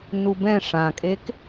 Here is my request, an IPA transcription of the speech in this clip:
nubɛ̃ ʂãkʼek

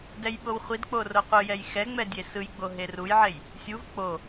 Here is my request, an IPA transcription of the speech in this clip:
dɛjɓowχʷidk͡po roqʷɯjɛj xɛ ŋ͡mɛdʲesɯjɡ͡bo ɦerujʕej | sʲuv k͡po

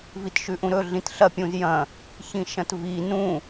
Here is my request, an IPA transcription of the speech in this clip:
vitʃʉʔũɾɵ ɮĩtɬɐ pʲũzjɐ̃ | çĩʃɐ̃tvi nũ

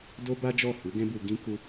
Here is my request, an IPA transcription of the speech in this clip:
do˦ba˦ d͡ʒɔ˦˨hu˨˦ ɡɛ̃˦bu˧ ɡĩ˧ ku˧

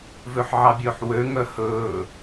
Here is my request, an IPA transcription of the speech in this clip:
vøħʕɑbʲɵːħwø ŋœhɵː

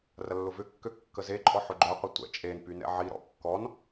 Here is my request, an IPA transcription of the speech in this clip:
rɐlːʊvʏkːø kːəzeǃʼɔ ħʊɡ͡ǃœqʷə tʷɛ̰ t͡ʃʼenpy nɛ̰ʕiɾɔ̰ kːɔn

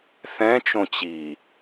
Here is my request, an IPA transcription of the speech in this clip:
θɛ̃ t͡ʃõt͡ɕi

